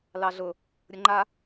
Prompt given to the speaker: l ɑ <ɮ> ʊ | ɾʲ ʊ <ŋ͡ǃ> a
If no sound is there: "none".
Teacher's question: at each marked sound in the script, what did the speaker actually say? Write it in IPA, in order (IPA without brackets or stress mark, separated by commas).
ɮ, ŋ͡ǃ